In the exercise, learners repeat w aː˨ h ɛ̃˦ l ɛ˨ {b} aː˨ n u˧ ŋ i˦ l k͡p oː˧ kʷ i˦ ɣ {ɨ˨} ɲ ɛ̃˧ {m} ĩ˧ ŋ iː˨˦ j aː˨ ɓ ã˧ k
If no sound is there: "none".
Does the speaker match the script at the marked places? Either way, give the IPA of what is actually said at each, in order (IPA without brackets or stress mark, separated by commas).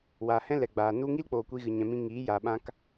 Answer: ɡ͡b, ɨ˧, m